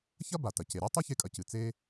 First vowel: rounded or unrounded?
unrounded